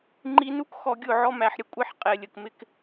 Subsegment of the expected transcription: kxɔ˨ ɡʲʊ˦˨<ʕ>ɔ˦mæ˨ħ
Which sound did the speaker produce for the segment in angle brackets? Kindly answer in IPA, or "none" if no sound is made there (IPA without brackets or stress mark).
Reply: ʕ